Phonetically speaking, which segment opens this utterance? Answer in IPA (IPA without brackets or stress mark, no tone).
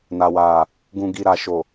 n